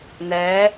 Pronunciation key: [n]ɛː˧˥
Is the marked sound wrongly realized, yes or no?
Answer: no